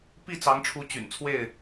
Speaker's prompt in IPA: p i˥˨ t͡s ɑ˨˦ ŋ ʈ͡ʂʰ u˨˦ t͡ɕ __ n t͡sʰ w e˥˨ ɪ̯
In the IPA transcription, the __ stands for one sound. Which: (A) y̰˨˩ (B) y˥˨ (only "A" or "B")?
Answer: A